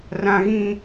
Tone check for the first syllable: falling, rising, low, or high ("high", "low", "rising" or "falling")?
high